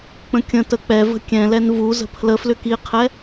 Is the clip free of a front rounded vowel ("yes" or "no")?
no